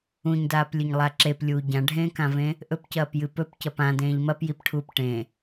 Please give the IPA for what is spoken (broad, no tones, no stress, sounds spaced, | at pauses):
ũ ɲ d aː p lʲ ɵ ɲ lˠ a ǁ e p lʲ uː ɟ ã ɖʱ ẽː k ã v ẽ | ʔ ɵ p c ɐː p j ɨ p ɵ p c ɐ p ã d ẽː ʎ m ɐ p j i p ʈʰ uː p ʈ ẽ